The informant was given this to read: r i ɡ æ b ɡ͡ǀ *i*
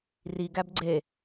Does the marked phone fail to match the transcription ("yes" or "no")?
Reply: yes